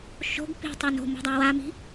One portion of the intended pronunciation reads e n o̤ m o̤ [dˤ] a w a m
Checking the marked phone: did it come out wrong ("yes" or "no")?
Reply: no